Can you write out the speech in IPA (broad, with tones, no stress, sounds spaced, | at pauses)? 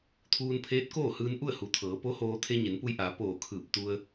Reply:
t̪ʰ uː˧ n pʰ eː˧˥ t̚ k oː˥˨ h ɯː˧ n ʔ u˥˨ ə̯ h u˩˧ t̪ʰ ɤː˩˧ p o˧˥ h oː˧ t̪ʰ e˧ ɲ e˩˧ n p u˧ j ʔ aː˩˧ p oː˧˩ kʰ ɯː˧˩ p̚ t̪ u˧ ə̯